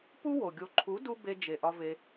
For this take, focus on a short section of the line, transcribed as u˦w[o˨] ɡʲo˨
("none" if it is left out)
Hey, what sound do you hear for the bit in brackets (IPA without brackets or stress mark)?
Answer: o˨